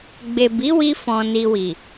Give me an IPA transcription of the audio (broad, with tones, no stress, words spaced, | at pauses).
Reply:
ɡ͡be˨bi˨˦wi˧ fɔ̃˨ni˨wi˨